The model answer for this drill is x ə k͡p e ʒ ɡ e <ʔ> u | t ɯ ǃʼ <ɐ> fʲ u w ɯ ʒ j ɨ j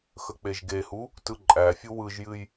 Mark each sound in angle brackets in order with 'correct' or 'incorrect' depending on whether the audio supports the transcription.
incorrect: h, incorrect: æ

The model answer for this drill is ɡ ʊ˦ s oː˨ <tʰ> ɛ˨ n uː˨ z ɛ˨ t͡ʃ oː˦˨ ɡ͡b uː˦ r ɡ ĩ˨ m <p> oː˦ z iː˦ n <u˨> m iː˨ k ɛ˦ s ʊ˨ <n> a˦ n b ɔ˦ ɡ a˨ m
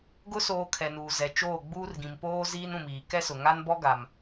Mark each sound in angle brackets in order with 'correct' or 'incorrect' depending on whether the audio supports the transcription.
incorrect: kʰ, correct, incorrect: ũ˨, incorrect: ŋ

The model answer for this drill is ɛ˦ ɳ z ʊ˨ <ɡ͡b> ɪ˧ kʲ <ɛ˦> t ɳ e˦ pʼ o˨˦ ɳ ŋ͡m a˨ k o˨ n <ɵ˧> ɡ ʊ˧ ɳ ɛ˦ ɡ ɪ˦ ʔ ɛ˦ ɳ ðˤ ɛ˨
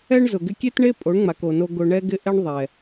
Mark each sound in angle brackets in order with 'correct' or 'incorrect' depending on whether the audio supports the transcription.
incorrect: ɡ, incorrect: e˦, incorrect: o˧

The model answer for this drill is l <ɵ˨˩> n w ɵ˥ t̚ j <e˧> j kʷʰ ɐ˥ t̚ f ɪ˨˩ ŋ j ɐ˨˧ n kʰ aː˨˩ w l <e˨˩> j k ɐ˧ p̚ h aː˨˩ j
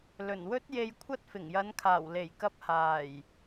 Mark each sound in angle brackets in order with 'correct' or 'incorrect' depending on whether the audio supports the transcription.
correct, correct, correct

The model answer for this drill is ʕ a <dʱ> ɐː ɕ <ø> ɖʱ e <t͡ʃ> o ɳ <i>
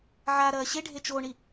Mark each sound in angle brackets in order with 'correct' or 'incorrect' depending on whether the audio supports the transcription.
incorrect: ɾ, incorrect: e, correct, correct

